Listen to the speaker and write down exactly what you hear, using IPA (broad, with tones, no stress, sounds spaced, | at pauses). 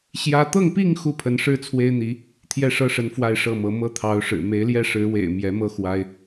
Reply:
ɕ j ä˥ t̪ ɤ˥˧ ŋ p i˥˧ ŋ x u˥˩ pʰ ə˧˥ n ʂ ɻ̩˥ t͡sʰ w e˥ ɪ̯ n̪ i˧˥ | t̪ʰ j ɛ˥˩ ʂ ɤ˥ ʂ ə˧˥ n f w a˥˧ ɪ̯ ʂ ɤ˥˩ m ɤ˧˥ m ɤ˥ t̪ʰ ɑ˧˥ ʊ̯ ʂ ɻ̩˨˩ m e˧˥ ɪ̯ l j ɛ˥˩ ʂ ɻ̩˧˥ w ḛ˨˩ ɪ̯ m j ɛ˧˥ m ɤ˥ x w a˥ ɪ̯